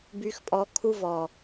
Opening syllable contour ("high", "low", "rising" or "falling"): low